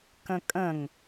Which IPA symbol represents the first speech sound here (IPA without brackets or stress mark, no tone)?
k